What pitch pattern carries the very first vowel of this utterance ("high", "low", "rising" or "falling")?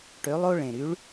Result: rising